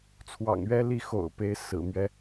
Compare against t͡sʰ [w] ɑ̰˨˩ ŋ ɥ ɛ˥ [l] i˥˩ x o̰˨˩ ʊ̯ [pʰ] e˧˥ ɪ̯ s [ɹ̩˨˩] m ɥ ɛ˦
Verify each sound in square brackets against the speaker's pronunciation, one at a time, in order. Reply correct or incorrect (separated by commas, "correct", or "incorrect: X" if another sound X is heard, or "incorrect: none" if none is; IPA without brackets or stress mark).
correct, correct, incorrect: p, correct